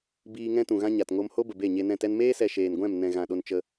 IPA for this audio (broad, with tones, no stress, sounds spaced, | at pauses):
b iː˧ ŋ ɛ̃˦ t ũ˨ ɣ ã˦ ɲ a˨ t ŋ o˧ m h o˦ b ə˨ b e˦˨ ɲ e˧ n ɛ̃˦˨ t ɛ˦ n m eː˦ s ɛ˨ ʃ eː˨ n ɡʷ ɛ̃˦˨ m n ɛ̃˨ ɣ ã˨ ɗ o˧ n t͡ʃ ə˧